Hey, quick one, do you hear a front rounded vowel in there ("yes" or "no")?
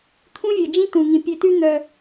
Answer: yes